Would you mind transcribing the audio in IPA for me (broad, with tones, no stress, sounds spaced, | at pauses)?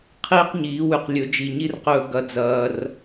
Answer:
qʰ iː˦ q ɲ iː˨˦ w ʉ˨ q lʲ ɵ˨˦ d͡ʒ i˨ ɲ i˦ r q ɵː˧ ɡ ɐ˧ d͡z ɐː˧ r